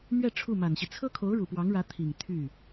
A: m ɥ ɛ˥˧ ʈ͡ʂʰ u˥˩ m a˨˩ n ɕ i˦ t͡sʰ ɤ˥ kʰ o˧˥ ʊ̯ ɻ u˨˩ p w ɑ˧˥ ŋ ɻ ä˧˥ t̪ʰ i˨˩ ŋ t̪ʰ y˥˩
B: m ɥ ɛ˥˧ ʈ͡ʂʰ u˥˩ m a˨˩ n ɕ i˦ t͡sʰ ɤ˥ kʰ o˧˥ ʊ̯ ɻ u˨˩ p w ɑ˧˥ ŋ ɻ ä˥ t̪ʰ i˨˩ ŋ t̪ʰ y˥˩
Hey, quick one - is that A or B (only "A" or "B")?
A